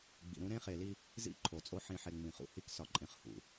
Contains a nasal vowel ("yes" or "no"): yes